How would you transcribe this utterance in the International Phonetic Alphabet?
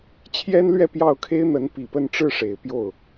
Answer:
t͡ɕʰ j ɛ˥ n l ɥ ɛ˥˧ p j ɑ˥˩ ʊ̯ kʰ e˥ ɪ̯ n̪ ə˧˥ n p i˨˩ p ə˥˧ n ʈ͡ʂ ɻ̩˥˩ ʂ e˨˩ ɪ̯ p j o˥˩ ʊ̯

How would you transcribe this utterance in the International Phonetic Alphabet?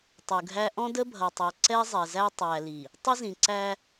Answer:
tˤ u˨ ɡʱ æ˦ ʔ ɔ̃˦ d ə˦ bʱ ʌ˨ tˤ ɑ˨ ǀ ɛ˦ zˤ ɛ˨ z æ˦ tˤ æ˨ l i˨ | tˤ ɪ˦ z ĩ˨ ǀ æ˦

